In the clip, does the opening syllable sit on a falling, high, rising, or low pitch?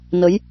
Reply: rising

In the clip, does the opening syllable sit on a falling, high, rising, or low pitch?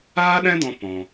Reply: high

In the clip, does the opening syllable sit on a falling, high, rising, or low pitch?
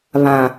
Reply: low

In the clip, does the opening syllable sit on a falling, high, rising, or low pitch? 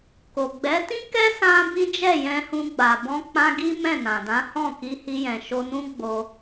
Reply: low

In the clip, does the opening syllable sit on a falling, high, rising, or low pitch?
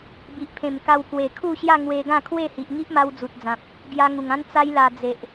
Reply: low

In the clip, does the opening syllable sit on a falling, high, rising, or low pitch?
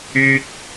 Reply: high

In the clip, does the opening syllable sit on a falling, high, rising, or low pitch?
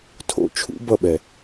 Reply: high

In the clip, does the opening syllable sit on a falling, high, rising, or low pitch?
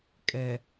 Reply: low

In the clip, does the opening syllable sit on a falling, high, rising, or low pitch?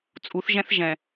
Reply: rising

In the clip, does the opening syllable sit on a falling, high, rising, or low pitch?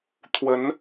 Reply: rising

